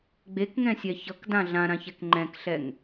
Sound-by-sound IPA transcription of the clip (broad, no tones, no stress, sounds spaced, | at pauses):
ɡ͡b e k ŋ ɛ̃ sʲ ɛ ç ʌ k d ã ɮ ã ɾ ã ç ɛ k ŋ͡ǃ ɛ̃ k ɬ ɛ ŋ